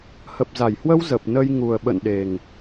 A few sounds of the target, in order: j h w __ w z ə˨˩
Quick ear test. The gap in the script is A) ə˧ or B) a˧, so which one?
A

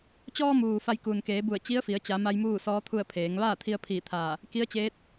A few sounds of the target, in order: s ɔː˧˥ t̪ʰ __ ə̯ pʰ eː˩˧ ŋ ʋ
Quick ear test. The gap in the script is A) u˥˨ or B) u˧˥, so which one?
A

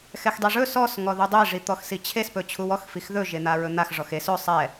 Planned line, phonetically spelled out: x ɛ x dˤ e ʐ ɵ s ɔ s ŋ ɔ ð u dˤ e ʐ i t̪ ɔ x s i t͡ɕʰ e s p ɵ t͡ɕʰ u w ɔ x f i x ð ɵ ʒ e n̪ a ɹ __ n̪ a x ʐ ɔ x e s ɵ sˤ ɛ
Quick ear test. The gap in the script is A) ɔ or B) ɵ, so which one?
B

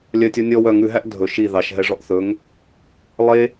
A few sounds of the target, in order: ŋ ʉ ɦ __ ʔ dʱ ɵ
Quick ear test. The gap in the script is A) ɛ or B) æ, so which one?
B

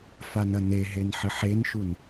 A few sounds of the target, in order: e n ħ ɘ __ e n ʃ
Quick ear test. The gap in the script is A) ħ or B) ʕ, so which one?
A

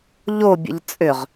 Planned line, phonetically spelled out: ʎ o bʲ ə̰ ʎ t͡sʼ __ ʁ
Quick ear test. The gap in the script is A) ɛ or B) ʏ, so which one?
B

